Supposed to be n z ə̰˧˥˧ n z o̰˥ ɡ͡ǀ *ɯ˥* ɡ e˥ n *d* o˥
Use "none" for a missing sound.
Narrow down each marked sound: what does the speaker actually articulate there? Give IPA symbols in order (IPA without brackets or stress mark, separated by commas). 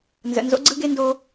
ɯ˥, d